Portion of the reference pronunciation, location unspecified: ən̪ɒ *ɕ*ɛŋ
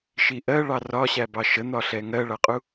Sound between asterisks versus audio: incorrect: ɬ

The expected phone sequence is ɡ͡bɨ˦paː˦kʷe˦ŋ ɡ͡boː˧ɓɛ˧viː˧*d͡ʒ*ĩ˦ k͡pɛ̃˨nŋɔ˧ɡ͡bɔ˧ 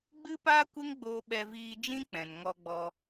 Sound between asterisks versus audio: correct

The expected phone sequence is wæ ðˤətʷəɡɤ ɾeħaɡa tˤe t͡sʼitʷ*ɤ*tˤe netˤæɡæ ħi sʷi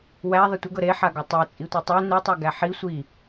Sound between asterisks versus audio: correct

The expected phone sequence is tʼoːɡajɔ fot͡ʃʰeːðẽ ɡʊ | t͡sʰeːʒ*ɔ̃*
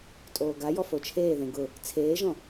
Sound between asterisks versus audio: correct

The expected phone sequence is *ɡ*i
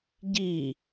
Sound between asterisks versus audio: incorrect: ɟ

